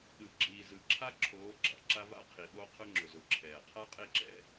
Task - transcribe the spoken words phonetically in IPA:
ɗɯ˨ ɡ͡ǁiː˨ zɯ˨ǁʰa˦ǁʰoː˨˦ ɡ͡ǁɑ̰˨ǁa˦ va̰˦qʰi˨ɓo˦ qʰʊ˦ŋ͡ǁʊ˨zʊ˨ǁʰɛː˨ qʰa˦qʼe˦˨ǁɛ̰˦

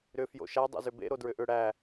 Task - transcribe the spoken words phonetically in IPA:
ɾʏ fjo̰ʃa dˤḛzʏbḛ ɾodɹʏʔʏ ɽæ

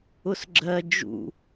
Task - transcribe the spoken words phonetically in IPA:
ʊsɡ͡ǁɜ d͡ʒṵ

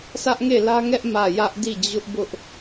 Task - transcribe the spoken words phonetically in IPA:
sä˦ʔŋe˦˨lä˦ŋɛ˦ʔ mä˦˨ jä˦ʔdi˦˨d͡ʑʊ˦ʔbʊ˦ʔ

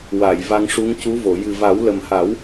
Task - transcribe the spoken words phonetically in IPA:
wa˨˩˨j va˧ŋʂu˧˥ŋcu˧˥ vo˨˩˨ jɨ˨˩va˨˩˦wlə˨˩mha˨˩˦w

